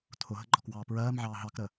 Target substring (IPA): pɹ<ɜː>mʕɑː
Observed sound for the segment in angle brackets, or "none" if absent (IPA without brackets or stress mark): ɜː